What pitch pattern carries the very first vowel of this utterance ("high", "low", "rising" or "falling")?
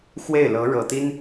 falling